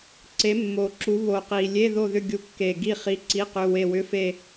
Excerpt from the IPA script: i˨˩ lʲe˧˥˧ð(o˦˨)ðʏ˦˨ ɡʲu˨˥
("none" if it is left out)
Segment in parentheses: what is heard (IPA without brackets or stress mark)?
o˦˨